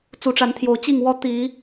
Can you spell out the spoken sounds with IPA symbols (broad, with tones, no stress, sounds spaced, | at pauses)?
t͡s u˨˦ ʈ͡ʂ a˨˦ n t̪ʰ j o˨˦ ʊ̯ t͡ɕ i˥˨ ŋ w ɔ˦ t̪ i˨˦